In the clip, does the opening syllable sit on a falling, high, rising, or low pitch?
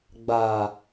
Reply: low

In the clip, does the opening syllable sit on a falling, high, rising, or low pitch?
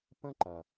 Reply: high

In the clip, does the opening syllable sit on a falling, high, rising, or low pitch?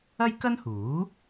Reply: high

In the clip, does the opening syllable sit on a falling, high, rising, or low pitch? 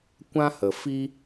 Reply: high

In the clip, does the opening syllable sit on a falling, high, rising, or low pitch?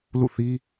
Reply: falling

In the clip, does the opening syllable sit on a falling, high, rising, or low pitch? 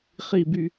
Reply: low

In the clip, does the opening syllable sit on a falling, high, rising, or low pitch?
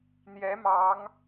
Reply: rising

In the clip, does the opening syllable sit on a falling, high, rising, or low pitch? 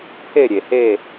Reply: falling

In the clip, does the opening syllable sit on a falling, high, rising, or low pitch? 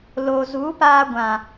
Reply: low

